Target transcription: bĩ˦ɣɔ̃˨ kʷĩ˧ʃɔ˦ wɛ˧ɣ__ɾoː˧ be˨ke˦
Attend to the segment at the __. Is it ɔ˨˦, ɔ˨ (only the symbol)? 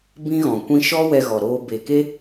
ɔ˨